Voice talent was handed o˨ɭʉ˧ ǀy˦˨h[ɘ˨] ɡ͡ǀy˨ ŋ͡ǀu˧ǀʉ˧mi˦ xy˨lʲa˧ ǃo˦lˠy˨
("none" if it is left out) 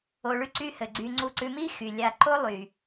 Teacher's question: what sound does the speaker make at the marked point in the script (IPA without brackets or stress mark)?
ɘ˨